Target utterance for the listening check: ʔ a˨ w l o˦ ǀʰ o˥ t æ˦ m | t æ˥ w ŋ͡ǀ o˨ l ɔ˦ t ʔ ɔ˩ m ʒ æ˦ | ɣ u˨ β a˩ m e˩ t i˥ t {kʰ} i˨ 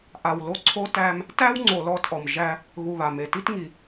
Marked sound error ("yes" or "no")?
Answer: yes